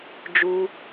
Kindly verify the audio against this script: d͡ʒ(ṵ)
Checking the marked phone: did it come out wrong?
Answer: yes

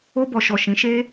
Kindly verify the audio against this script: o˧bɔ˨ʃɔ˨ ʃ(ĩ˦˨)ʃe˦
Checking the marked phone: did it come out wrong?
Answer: yes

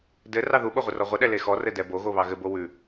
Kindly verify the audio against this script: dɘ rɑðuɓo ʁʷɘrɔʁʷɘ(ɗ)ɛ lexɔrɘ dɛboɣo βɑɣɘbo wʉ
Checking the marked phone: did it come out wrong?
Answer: no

